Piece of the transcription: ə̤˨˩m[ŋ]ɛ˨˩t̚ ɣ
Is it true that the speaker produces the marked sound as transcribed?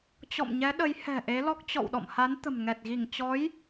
yes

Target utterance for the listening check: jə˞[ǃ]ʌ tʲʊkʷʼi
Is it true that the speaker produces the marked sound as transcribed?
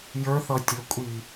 no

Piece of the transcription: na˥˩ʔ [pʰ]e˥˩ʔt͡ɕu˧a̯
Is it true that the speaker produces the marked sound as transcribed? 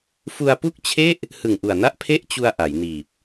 yes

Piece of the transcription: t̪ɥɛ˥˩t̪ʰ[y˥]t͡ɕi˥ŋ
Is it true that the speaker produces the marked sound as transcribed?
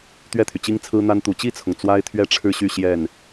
no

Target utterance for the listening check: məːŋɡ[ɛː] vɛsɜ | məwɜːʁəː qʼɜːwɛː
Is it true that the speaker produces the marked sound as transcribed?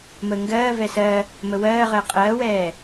no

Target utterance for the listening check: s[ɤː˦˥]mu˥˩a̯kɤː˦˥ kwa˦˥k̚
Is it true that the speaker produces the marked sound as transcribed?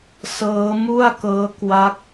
yes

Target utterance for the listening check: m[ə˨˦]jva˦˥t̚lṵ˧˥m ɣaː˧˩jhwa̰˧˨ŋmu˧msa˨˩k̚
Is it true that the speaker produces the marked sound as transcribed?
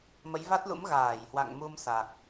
yes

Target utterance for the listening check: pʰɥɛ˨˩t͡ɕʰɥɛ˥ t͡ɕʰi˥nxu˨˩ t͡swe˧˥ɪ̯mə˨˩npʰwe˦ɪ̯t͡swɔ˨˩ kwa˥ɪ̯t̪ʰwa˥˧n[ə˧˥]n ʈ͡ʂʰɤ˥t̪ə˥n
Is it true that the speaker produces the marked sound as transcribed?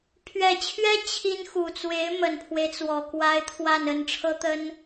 no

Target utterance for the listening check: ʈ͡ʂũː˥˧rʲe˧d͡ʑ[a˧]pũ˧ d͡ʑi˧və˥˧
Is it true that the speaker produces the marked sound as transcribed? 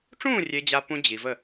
yes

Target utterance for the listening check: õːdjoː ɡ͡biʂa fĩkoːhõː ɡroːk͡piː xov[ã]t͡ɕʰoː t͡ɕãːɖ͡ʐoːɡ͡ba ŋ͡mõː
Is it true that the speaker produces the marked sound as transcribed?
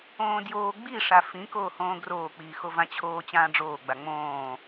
yes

